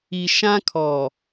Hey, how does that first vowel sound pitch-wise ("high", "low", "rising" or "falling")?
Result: low